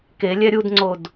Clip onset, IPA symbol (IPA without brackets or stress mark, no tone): k